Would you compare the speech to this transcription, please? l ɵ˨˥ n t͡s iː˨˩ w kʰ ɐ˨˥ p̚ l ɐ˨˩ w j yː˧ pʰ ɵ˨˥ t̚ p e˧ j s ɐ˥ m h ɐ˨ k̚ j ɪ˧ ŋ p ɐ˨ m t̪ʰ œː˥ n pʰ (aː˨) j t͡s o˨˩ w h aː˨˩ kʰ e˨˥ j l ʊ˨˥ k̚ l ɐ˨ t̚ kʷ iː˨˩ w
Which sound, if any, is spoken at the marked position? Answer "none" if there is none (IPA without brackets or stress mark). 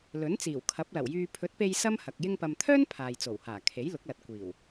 aː˨